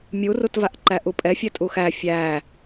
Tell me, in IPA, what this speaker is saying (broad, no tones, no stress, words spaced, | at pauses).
mʲurutvaʔ ǃæʔupʼɛfʲɛ tʼuxæ fʲæ